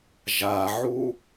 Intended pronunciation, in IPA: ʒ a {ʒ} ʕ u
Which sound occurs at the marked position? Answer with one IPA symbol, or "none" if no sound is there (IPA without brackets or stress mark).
none